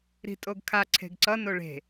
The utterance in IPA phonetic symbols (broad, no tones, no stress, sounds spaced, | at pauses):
ɾ i̤ tʼ o ɡ kʰ a ǀʰ e̤ ɡ ǀ ʌ n o ɭ e̤